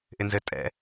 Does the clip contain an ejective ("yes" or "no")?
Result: yes